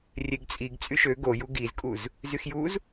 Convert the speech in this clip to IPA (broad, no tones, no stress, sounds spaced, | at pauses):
rʲ e ɡ t͡sʼ i ɡ t͡sʼ y ʃ ø ɡ o j u ɡ i z kʼ u z | z y x j u z